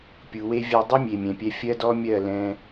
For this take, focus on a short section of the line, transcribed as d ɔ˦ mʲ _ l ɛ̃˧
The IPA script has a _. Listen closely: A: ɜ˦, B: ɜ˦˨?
B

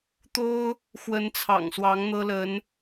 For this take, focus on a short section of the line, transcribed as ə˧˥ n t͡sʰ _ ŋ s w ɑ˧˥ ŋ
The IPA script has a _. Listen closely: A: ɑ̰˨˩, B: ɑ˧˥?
A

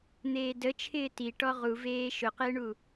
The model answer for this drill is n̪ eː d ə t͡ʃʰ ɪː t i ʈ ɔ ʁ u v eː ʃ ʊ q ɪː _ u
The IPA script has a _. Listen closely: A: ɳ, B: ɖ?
A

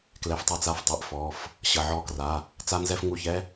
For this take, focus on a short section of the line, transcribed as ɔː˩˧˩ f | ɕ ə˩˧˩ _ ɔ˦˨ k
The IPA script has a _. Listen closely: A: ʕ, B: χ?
A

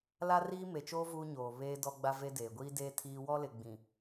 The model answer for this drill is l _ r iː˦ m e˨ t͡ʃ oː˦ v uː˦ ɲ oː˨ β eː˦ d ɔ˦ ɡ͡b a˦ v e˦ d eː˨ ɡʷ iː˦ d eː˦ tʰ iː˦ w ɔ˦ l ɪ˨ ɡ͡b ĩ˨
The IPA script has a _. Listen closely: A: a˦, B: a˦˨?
A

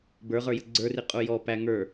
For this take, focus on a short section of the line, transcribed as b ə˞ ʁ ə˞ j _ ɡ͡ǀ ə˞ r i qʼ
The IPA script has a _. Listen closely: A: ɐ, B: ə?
B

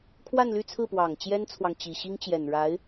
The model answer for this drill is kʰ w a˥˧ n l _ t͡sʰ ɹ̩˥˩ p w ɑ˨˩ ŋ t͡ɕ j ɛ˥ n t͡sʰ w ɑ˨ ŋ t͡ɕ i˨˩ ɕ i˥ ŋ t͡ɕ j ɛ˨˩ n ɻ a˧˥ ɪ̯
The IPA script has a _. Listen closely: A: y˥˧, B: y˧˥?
A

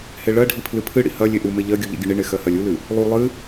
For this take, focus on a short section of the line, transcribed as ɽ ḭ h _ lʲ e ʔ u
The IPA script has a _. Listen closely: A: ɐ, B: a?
A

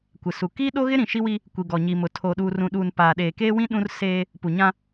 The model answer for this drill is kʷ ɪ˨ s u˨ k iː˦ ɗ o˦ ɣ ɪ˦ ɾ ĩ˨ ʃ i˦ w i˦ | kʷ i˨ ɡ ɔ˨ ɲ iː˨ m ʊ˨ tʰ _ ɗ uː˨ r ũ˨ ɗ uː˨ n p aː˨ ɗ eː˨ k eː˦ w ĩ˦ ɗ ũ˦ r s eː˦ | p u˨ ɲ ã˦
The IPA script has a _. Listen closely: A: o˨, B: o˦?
A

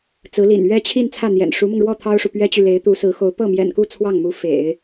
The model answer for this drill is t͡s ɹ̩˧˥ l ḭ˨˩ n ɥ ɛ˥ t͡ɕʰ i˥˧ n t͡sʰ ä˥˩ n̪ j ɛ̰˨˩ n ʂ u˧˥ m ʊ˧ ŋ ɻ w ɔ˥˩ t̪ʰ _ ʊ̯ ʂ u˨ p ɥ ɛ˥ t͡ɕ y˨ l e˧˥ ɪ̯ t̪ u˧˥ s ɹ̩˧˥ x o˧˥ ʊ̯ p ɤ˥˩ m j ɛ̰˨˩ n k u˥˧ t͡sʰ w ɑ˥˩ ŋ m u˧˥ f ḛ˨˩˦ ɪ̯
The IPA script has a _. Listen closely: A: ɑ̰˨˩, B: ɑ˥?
B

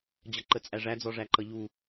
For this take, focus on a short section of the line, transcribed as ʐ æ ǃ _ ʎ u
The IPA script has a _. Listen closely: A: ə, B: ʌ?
B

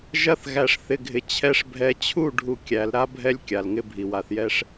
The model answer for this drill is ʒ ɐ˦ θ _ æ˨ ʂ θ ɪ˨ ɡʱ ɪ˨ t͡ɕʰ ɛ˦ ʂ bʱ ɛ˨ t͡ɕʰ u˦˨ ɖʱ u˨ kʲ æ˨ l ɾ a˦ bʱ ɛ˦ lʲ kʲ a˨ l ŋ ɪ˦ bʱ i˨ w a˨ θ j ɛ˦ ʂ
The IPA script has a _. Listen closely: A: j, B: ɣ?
B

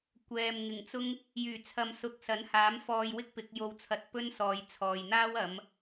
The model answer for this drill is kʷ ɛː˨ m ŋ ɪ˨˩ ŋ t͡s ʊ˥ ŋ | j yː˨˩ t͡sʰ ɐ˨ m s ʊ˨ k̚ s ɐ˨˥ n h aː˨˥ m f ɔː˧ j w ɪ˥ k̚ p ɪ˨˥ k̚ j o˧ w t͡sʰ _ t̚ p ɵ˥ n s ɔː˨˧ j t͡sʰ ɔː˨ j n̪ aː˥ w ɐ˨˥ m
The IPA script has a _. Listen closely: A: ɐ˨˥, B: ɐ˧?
B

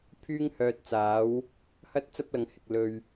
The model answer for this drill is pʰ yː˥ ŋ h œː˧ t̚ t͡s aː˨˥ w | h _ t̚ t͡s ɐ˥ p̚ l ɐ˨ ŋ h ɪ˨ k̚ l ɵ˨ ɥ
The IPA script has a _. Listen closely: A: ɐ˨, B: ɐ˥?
B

